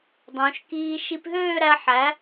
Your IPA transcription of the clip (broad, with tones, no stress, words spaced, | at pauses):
dˤõ˩˧ʃkiː˧ ʃi˧pɦøː˥˧ ɾæ˧ ħæ˩˧